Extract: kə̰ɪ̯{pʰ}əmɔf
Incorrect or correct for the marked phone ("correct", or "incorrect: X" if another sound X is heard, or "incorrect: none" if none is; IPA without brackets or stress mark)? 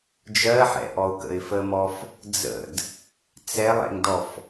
incorrect: f